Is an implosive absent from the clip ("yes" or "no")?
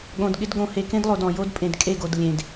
no